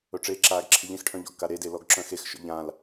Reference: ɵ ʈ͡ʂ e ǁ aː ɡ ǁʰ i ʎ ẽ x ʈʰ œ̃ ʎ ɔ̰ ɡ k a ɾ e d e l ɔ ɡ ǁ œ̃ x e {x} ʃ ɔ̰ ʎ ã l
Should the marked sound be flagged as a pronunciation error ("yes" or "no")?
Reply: no